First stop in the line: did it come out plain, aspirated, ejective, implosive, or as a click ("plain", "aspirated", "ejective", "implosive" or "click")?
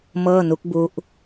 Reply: plain